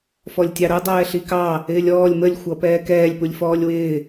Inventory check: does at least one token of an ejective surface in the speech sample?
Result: no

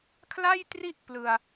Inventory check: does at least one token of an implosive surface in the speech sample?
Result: no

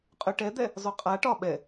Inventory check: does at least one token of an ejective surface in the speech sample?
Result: yes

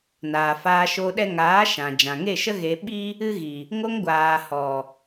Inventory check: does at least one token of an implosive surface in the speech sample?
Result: yes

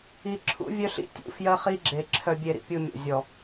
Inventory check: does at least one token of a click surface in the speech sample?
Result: yes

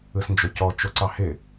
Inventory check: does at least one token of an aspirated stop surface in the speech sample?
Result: no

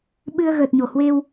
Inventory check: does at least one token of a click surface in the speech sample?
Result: no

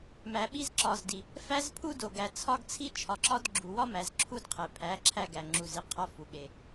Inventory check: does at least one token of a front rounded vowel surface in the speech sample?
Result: no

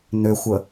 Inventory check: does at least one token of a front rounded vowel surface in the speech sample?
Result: yes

